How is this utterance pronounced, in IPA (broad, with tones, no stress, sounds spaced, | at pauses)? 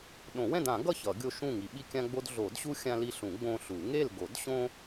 ɗ õ˨˩˦ w ɛ̃˥˨ d ã˨˩˦ ɡ ʌ˥˨ ç ʌ˨˩˦ ɡʲ o˦ ʃ ũ˥˨ ŋ i˨˩˦ ɓ i˦ kʲ ã˦ ɡ͡b o˦ d ɮ o˨˩˦ d ɕ u˦ xʲ ã˦ l i˦ ɬ ũ˨˩˦ ɡ͡b õ˦ ɬ u˨˩˦ ŋ e˥˨ l ɡ o˨˩˦ d ɕ õ˦